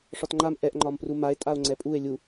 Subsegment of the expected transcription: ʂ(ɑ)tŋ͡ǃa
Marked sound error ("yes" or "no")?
yes